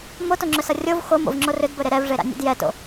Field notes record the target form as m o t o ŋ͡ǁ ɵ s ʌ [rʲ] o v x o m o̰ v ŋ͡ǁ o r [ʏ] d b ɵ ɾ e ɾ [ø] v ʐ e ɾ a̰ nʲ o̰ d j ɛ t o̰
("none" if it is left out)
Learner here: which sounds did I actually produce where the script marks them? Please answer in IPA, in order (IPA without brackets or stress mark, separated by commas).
rʲ, ʏ, ɛ